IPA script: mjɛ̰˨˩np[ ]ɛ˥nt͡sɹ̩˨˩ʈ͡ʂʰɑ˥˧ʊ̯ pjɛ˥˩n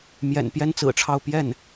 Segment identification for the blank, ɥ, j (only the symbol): j